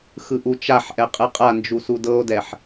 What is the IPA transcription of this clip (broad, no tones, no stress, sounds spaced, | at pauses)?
x ɯ ʔ u t͡ʃ a ħ ʔ ɛ qʼ ɯ qʼ a n d͡ʒ u s u d ɤ o̯ d ɛ ħ